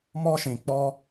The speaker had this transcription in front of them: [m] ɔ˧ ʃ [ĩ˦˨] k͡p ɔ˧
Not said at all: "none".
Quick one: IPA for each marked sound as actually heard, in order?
m, ĩ˨

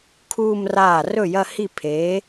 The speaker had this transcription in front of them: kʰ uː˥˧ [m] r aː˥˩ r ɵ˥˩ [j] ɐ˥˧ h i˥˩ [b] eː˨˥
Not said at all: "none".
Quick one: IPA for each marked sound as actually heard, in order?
m, j, pʰ

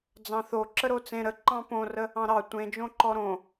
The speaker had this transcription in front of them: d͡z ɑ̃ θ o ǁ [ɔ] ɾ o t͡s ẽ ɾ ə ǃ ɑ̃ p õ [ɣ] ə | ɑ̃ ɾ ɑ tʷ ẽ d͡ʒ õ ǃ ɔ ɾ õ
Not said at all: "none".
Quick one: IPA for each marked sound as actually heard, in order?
ə, r

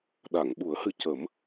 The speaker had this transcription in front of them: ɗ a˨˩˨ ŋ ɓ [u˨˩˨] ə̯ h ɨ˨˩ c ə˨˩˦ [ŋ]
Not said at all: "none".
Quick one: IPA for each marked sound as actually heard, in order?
u˨˩˦, m

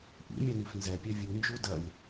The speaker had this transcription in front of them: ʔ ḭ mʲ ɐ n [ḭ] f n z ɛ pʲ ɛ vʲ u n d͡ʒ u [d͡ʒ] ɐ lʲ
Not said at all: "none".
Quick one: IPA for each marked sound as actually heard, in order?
i, d

